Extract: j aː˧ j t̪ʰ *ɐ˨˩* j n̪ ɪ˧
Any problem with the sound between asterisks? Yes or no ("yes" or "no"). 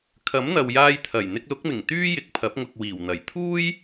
no